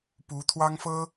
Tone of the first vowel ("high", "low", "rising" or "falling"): rising